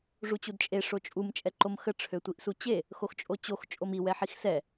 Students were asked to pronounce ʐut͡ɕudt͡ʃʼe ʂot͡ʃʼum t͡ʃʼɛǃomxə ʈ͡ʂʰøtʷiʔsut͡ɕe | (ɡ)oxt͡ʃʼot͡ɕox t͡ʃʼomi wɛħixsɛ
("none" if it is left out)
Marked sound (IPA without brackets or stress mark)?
x